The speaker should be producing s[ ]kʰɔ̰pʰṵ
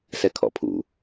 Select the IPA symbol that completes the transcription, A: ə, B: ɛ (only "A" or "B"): B